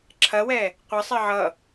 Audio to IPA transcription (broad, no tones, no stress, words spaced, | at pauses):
ǁʰɐwɛ | qʷʌsˤe ʕʌ